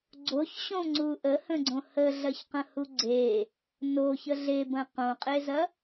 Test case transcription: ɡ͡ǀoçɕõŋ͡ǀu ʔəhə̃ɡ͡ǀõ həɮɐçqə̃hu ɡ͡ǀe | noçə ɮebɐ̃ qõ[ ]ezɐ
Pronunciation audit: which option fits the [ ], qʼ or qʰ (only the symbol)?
qʼ